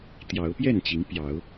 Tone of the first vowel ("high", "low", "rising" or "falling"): rising